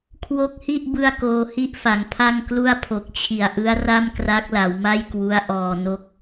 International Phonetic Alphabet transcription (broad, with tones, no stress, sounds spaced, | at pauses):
kʰ w o˦˥ k̚ h i˥˩ ʔ b ɯ˥˩ a̯ k oː˧ h i˥˩ ʔ f a˩˦ ŋ pʰ a˥˩ ŋ k l u˥˩ a̯ pʰ o˨˩ k̚ t͡ɕʰ i˨˩ a̯ ʔ ɯ˦˥ a̯ r a˥˩ m k r a˦˥ k̚ l a˩˦ w m a˥˩ j k w u˦˥ a̯ ʔ ɔː˨˩ n o˦˥ k̚